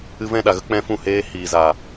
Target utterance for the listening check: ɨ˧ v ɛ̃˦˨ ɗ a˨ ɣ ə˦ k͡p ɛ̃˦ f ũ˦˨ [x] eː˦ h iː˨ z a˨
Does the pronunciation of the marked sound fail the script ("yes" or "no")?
yes